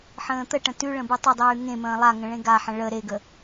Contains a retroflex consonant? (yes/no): yes